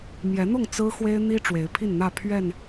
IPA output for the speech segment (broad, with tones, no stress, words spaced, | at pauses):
mjɛ˨˦n̪ʊ˥˨ŋ t͡sɹ̩˦xwe˦ɪ̯n̪i˦ ʈ͡ʂwe˨˦ɪ̯pʰi˥˨nn̪ä˥˨ pʰɥɛ˥˨n